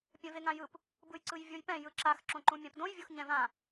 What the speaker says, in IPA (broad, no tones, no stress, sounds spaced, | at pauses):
pʲ ɛ̃ v e ŋ ã j ɯ p | b ɯ j ǀ ɯ j vʲ o j p ɛ̃ j ɯ ǁ a x ǁ õ ǃ ũ mʲ ã p d õ j vʲ o x ɲ ɛ̃ v ã